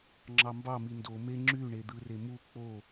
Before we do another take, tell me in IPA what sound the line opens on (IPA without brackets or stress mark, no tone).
ŋ͡ǁ